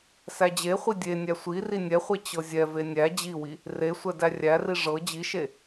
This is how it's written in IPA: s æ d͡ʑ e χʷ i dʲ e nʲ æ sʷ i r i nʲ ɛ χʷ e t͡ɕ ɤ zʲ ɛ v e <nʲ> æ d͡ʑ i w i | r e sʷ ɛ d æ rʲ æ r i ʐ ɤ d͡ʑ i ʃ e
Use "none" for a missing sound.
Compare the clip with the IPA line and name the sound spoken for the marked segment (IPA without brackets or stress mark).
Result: nʲ